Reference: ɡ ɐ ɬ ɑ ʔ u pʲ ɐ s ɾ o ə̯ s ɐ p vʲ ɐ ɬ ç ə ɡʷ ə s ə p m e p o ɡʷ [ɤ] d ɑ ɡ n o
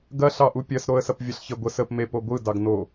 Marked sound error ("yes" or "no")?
yes